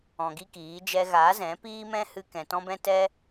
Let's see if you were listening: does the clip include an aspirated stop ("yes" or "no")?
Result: no